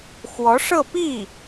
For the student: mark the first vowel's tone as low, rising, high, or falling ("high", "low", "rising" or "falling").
rising